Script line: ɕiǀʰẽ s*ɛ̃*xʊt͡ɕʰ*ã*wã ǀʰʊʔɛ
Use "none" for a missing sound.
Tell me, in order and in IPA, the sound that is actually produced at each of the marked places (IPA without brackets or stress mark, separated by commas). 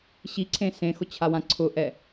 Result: ẽ, a